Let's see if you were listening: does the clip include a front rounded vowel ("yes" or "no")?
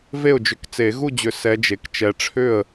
yes